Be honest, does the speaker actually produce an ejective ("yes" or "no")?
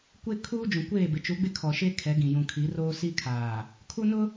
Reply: no